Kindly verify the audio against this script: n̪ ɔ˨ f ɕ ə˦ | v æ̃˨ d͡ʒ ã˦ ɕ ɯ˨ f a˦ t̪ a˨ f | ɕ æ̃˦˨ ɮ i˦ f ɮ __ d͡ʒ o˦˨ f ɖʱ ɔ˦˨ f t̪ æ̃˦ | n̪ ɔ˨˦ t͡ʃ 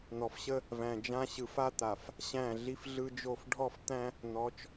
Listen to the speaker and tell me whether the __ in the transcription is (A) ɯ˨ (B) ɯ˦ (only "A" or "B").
B